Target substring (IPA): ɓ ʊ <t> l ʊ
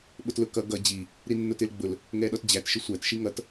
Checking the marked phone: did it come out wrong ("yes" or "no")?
no